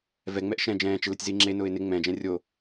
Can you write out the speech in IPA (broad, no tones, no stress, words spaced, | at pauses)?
vɛŋ͡mɛʔ ʃɛ̃ d͡ʒɛ̃ːt͡ʃɪlɪtʲziː ŋ͡ǁenʊːɪ̯ nɪ ŋ͡mɛ̃d͡ʒɛ̃ rʲo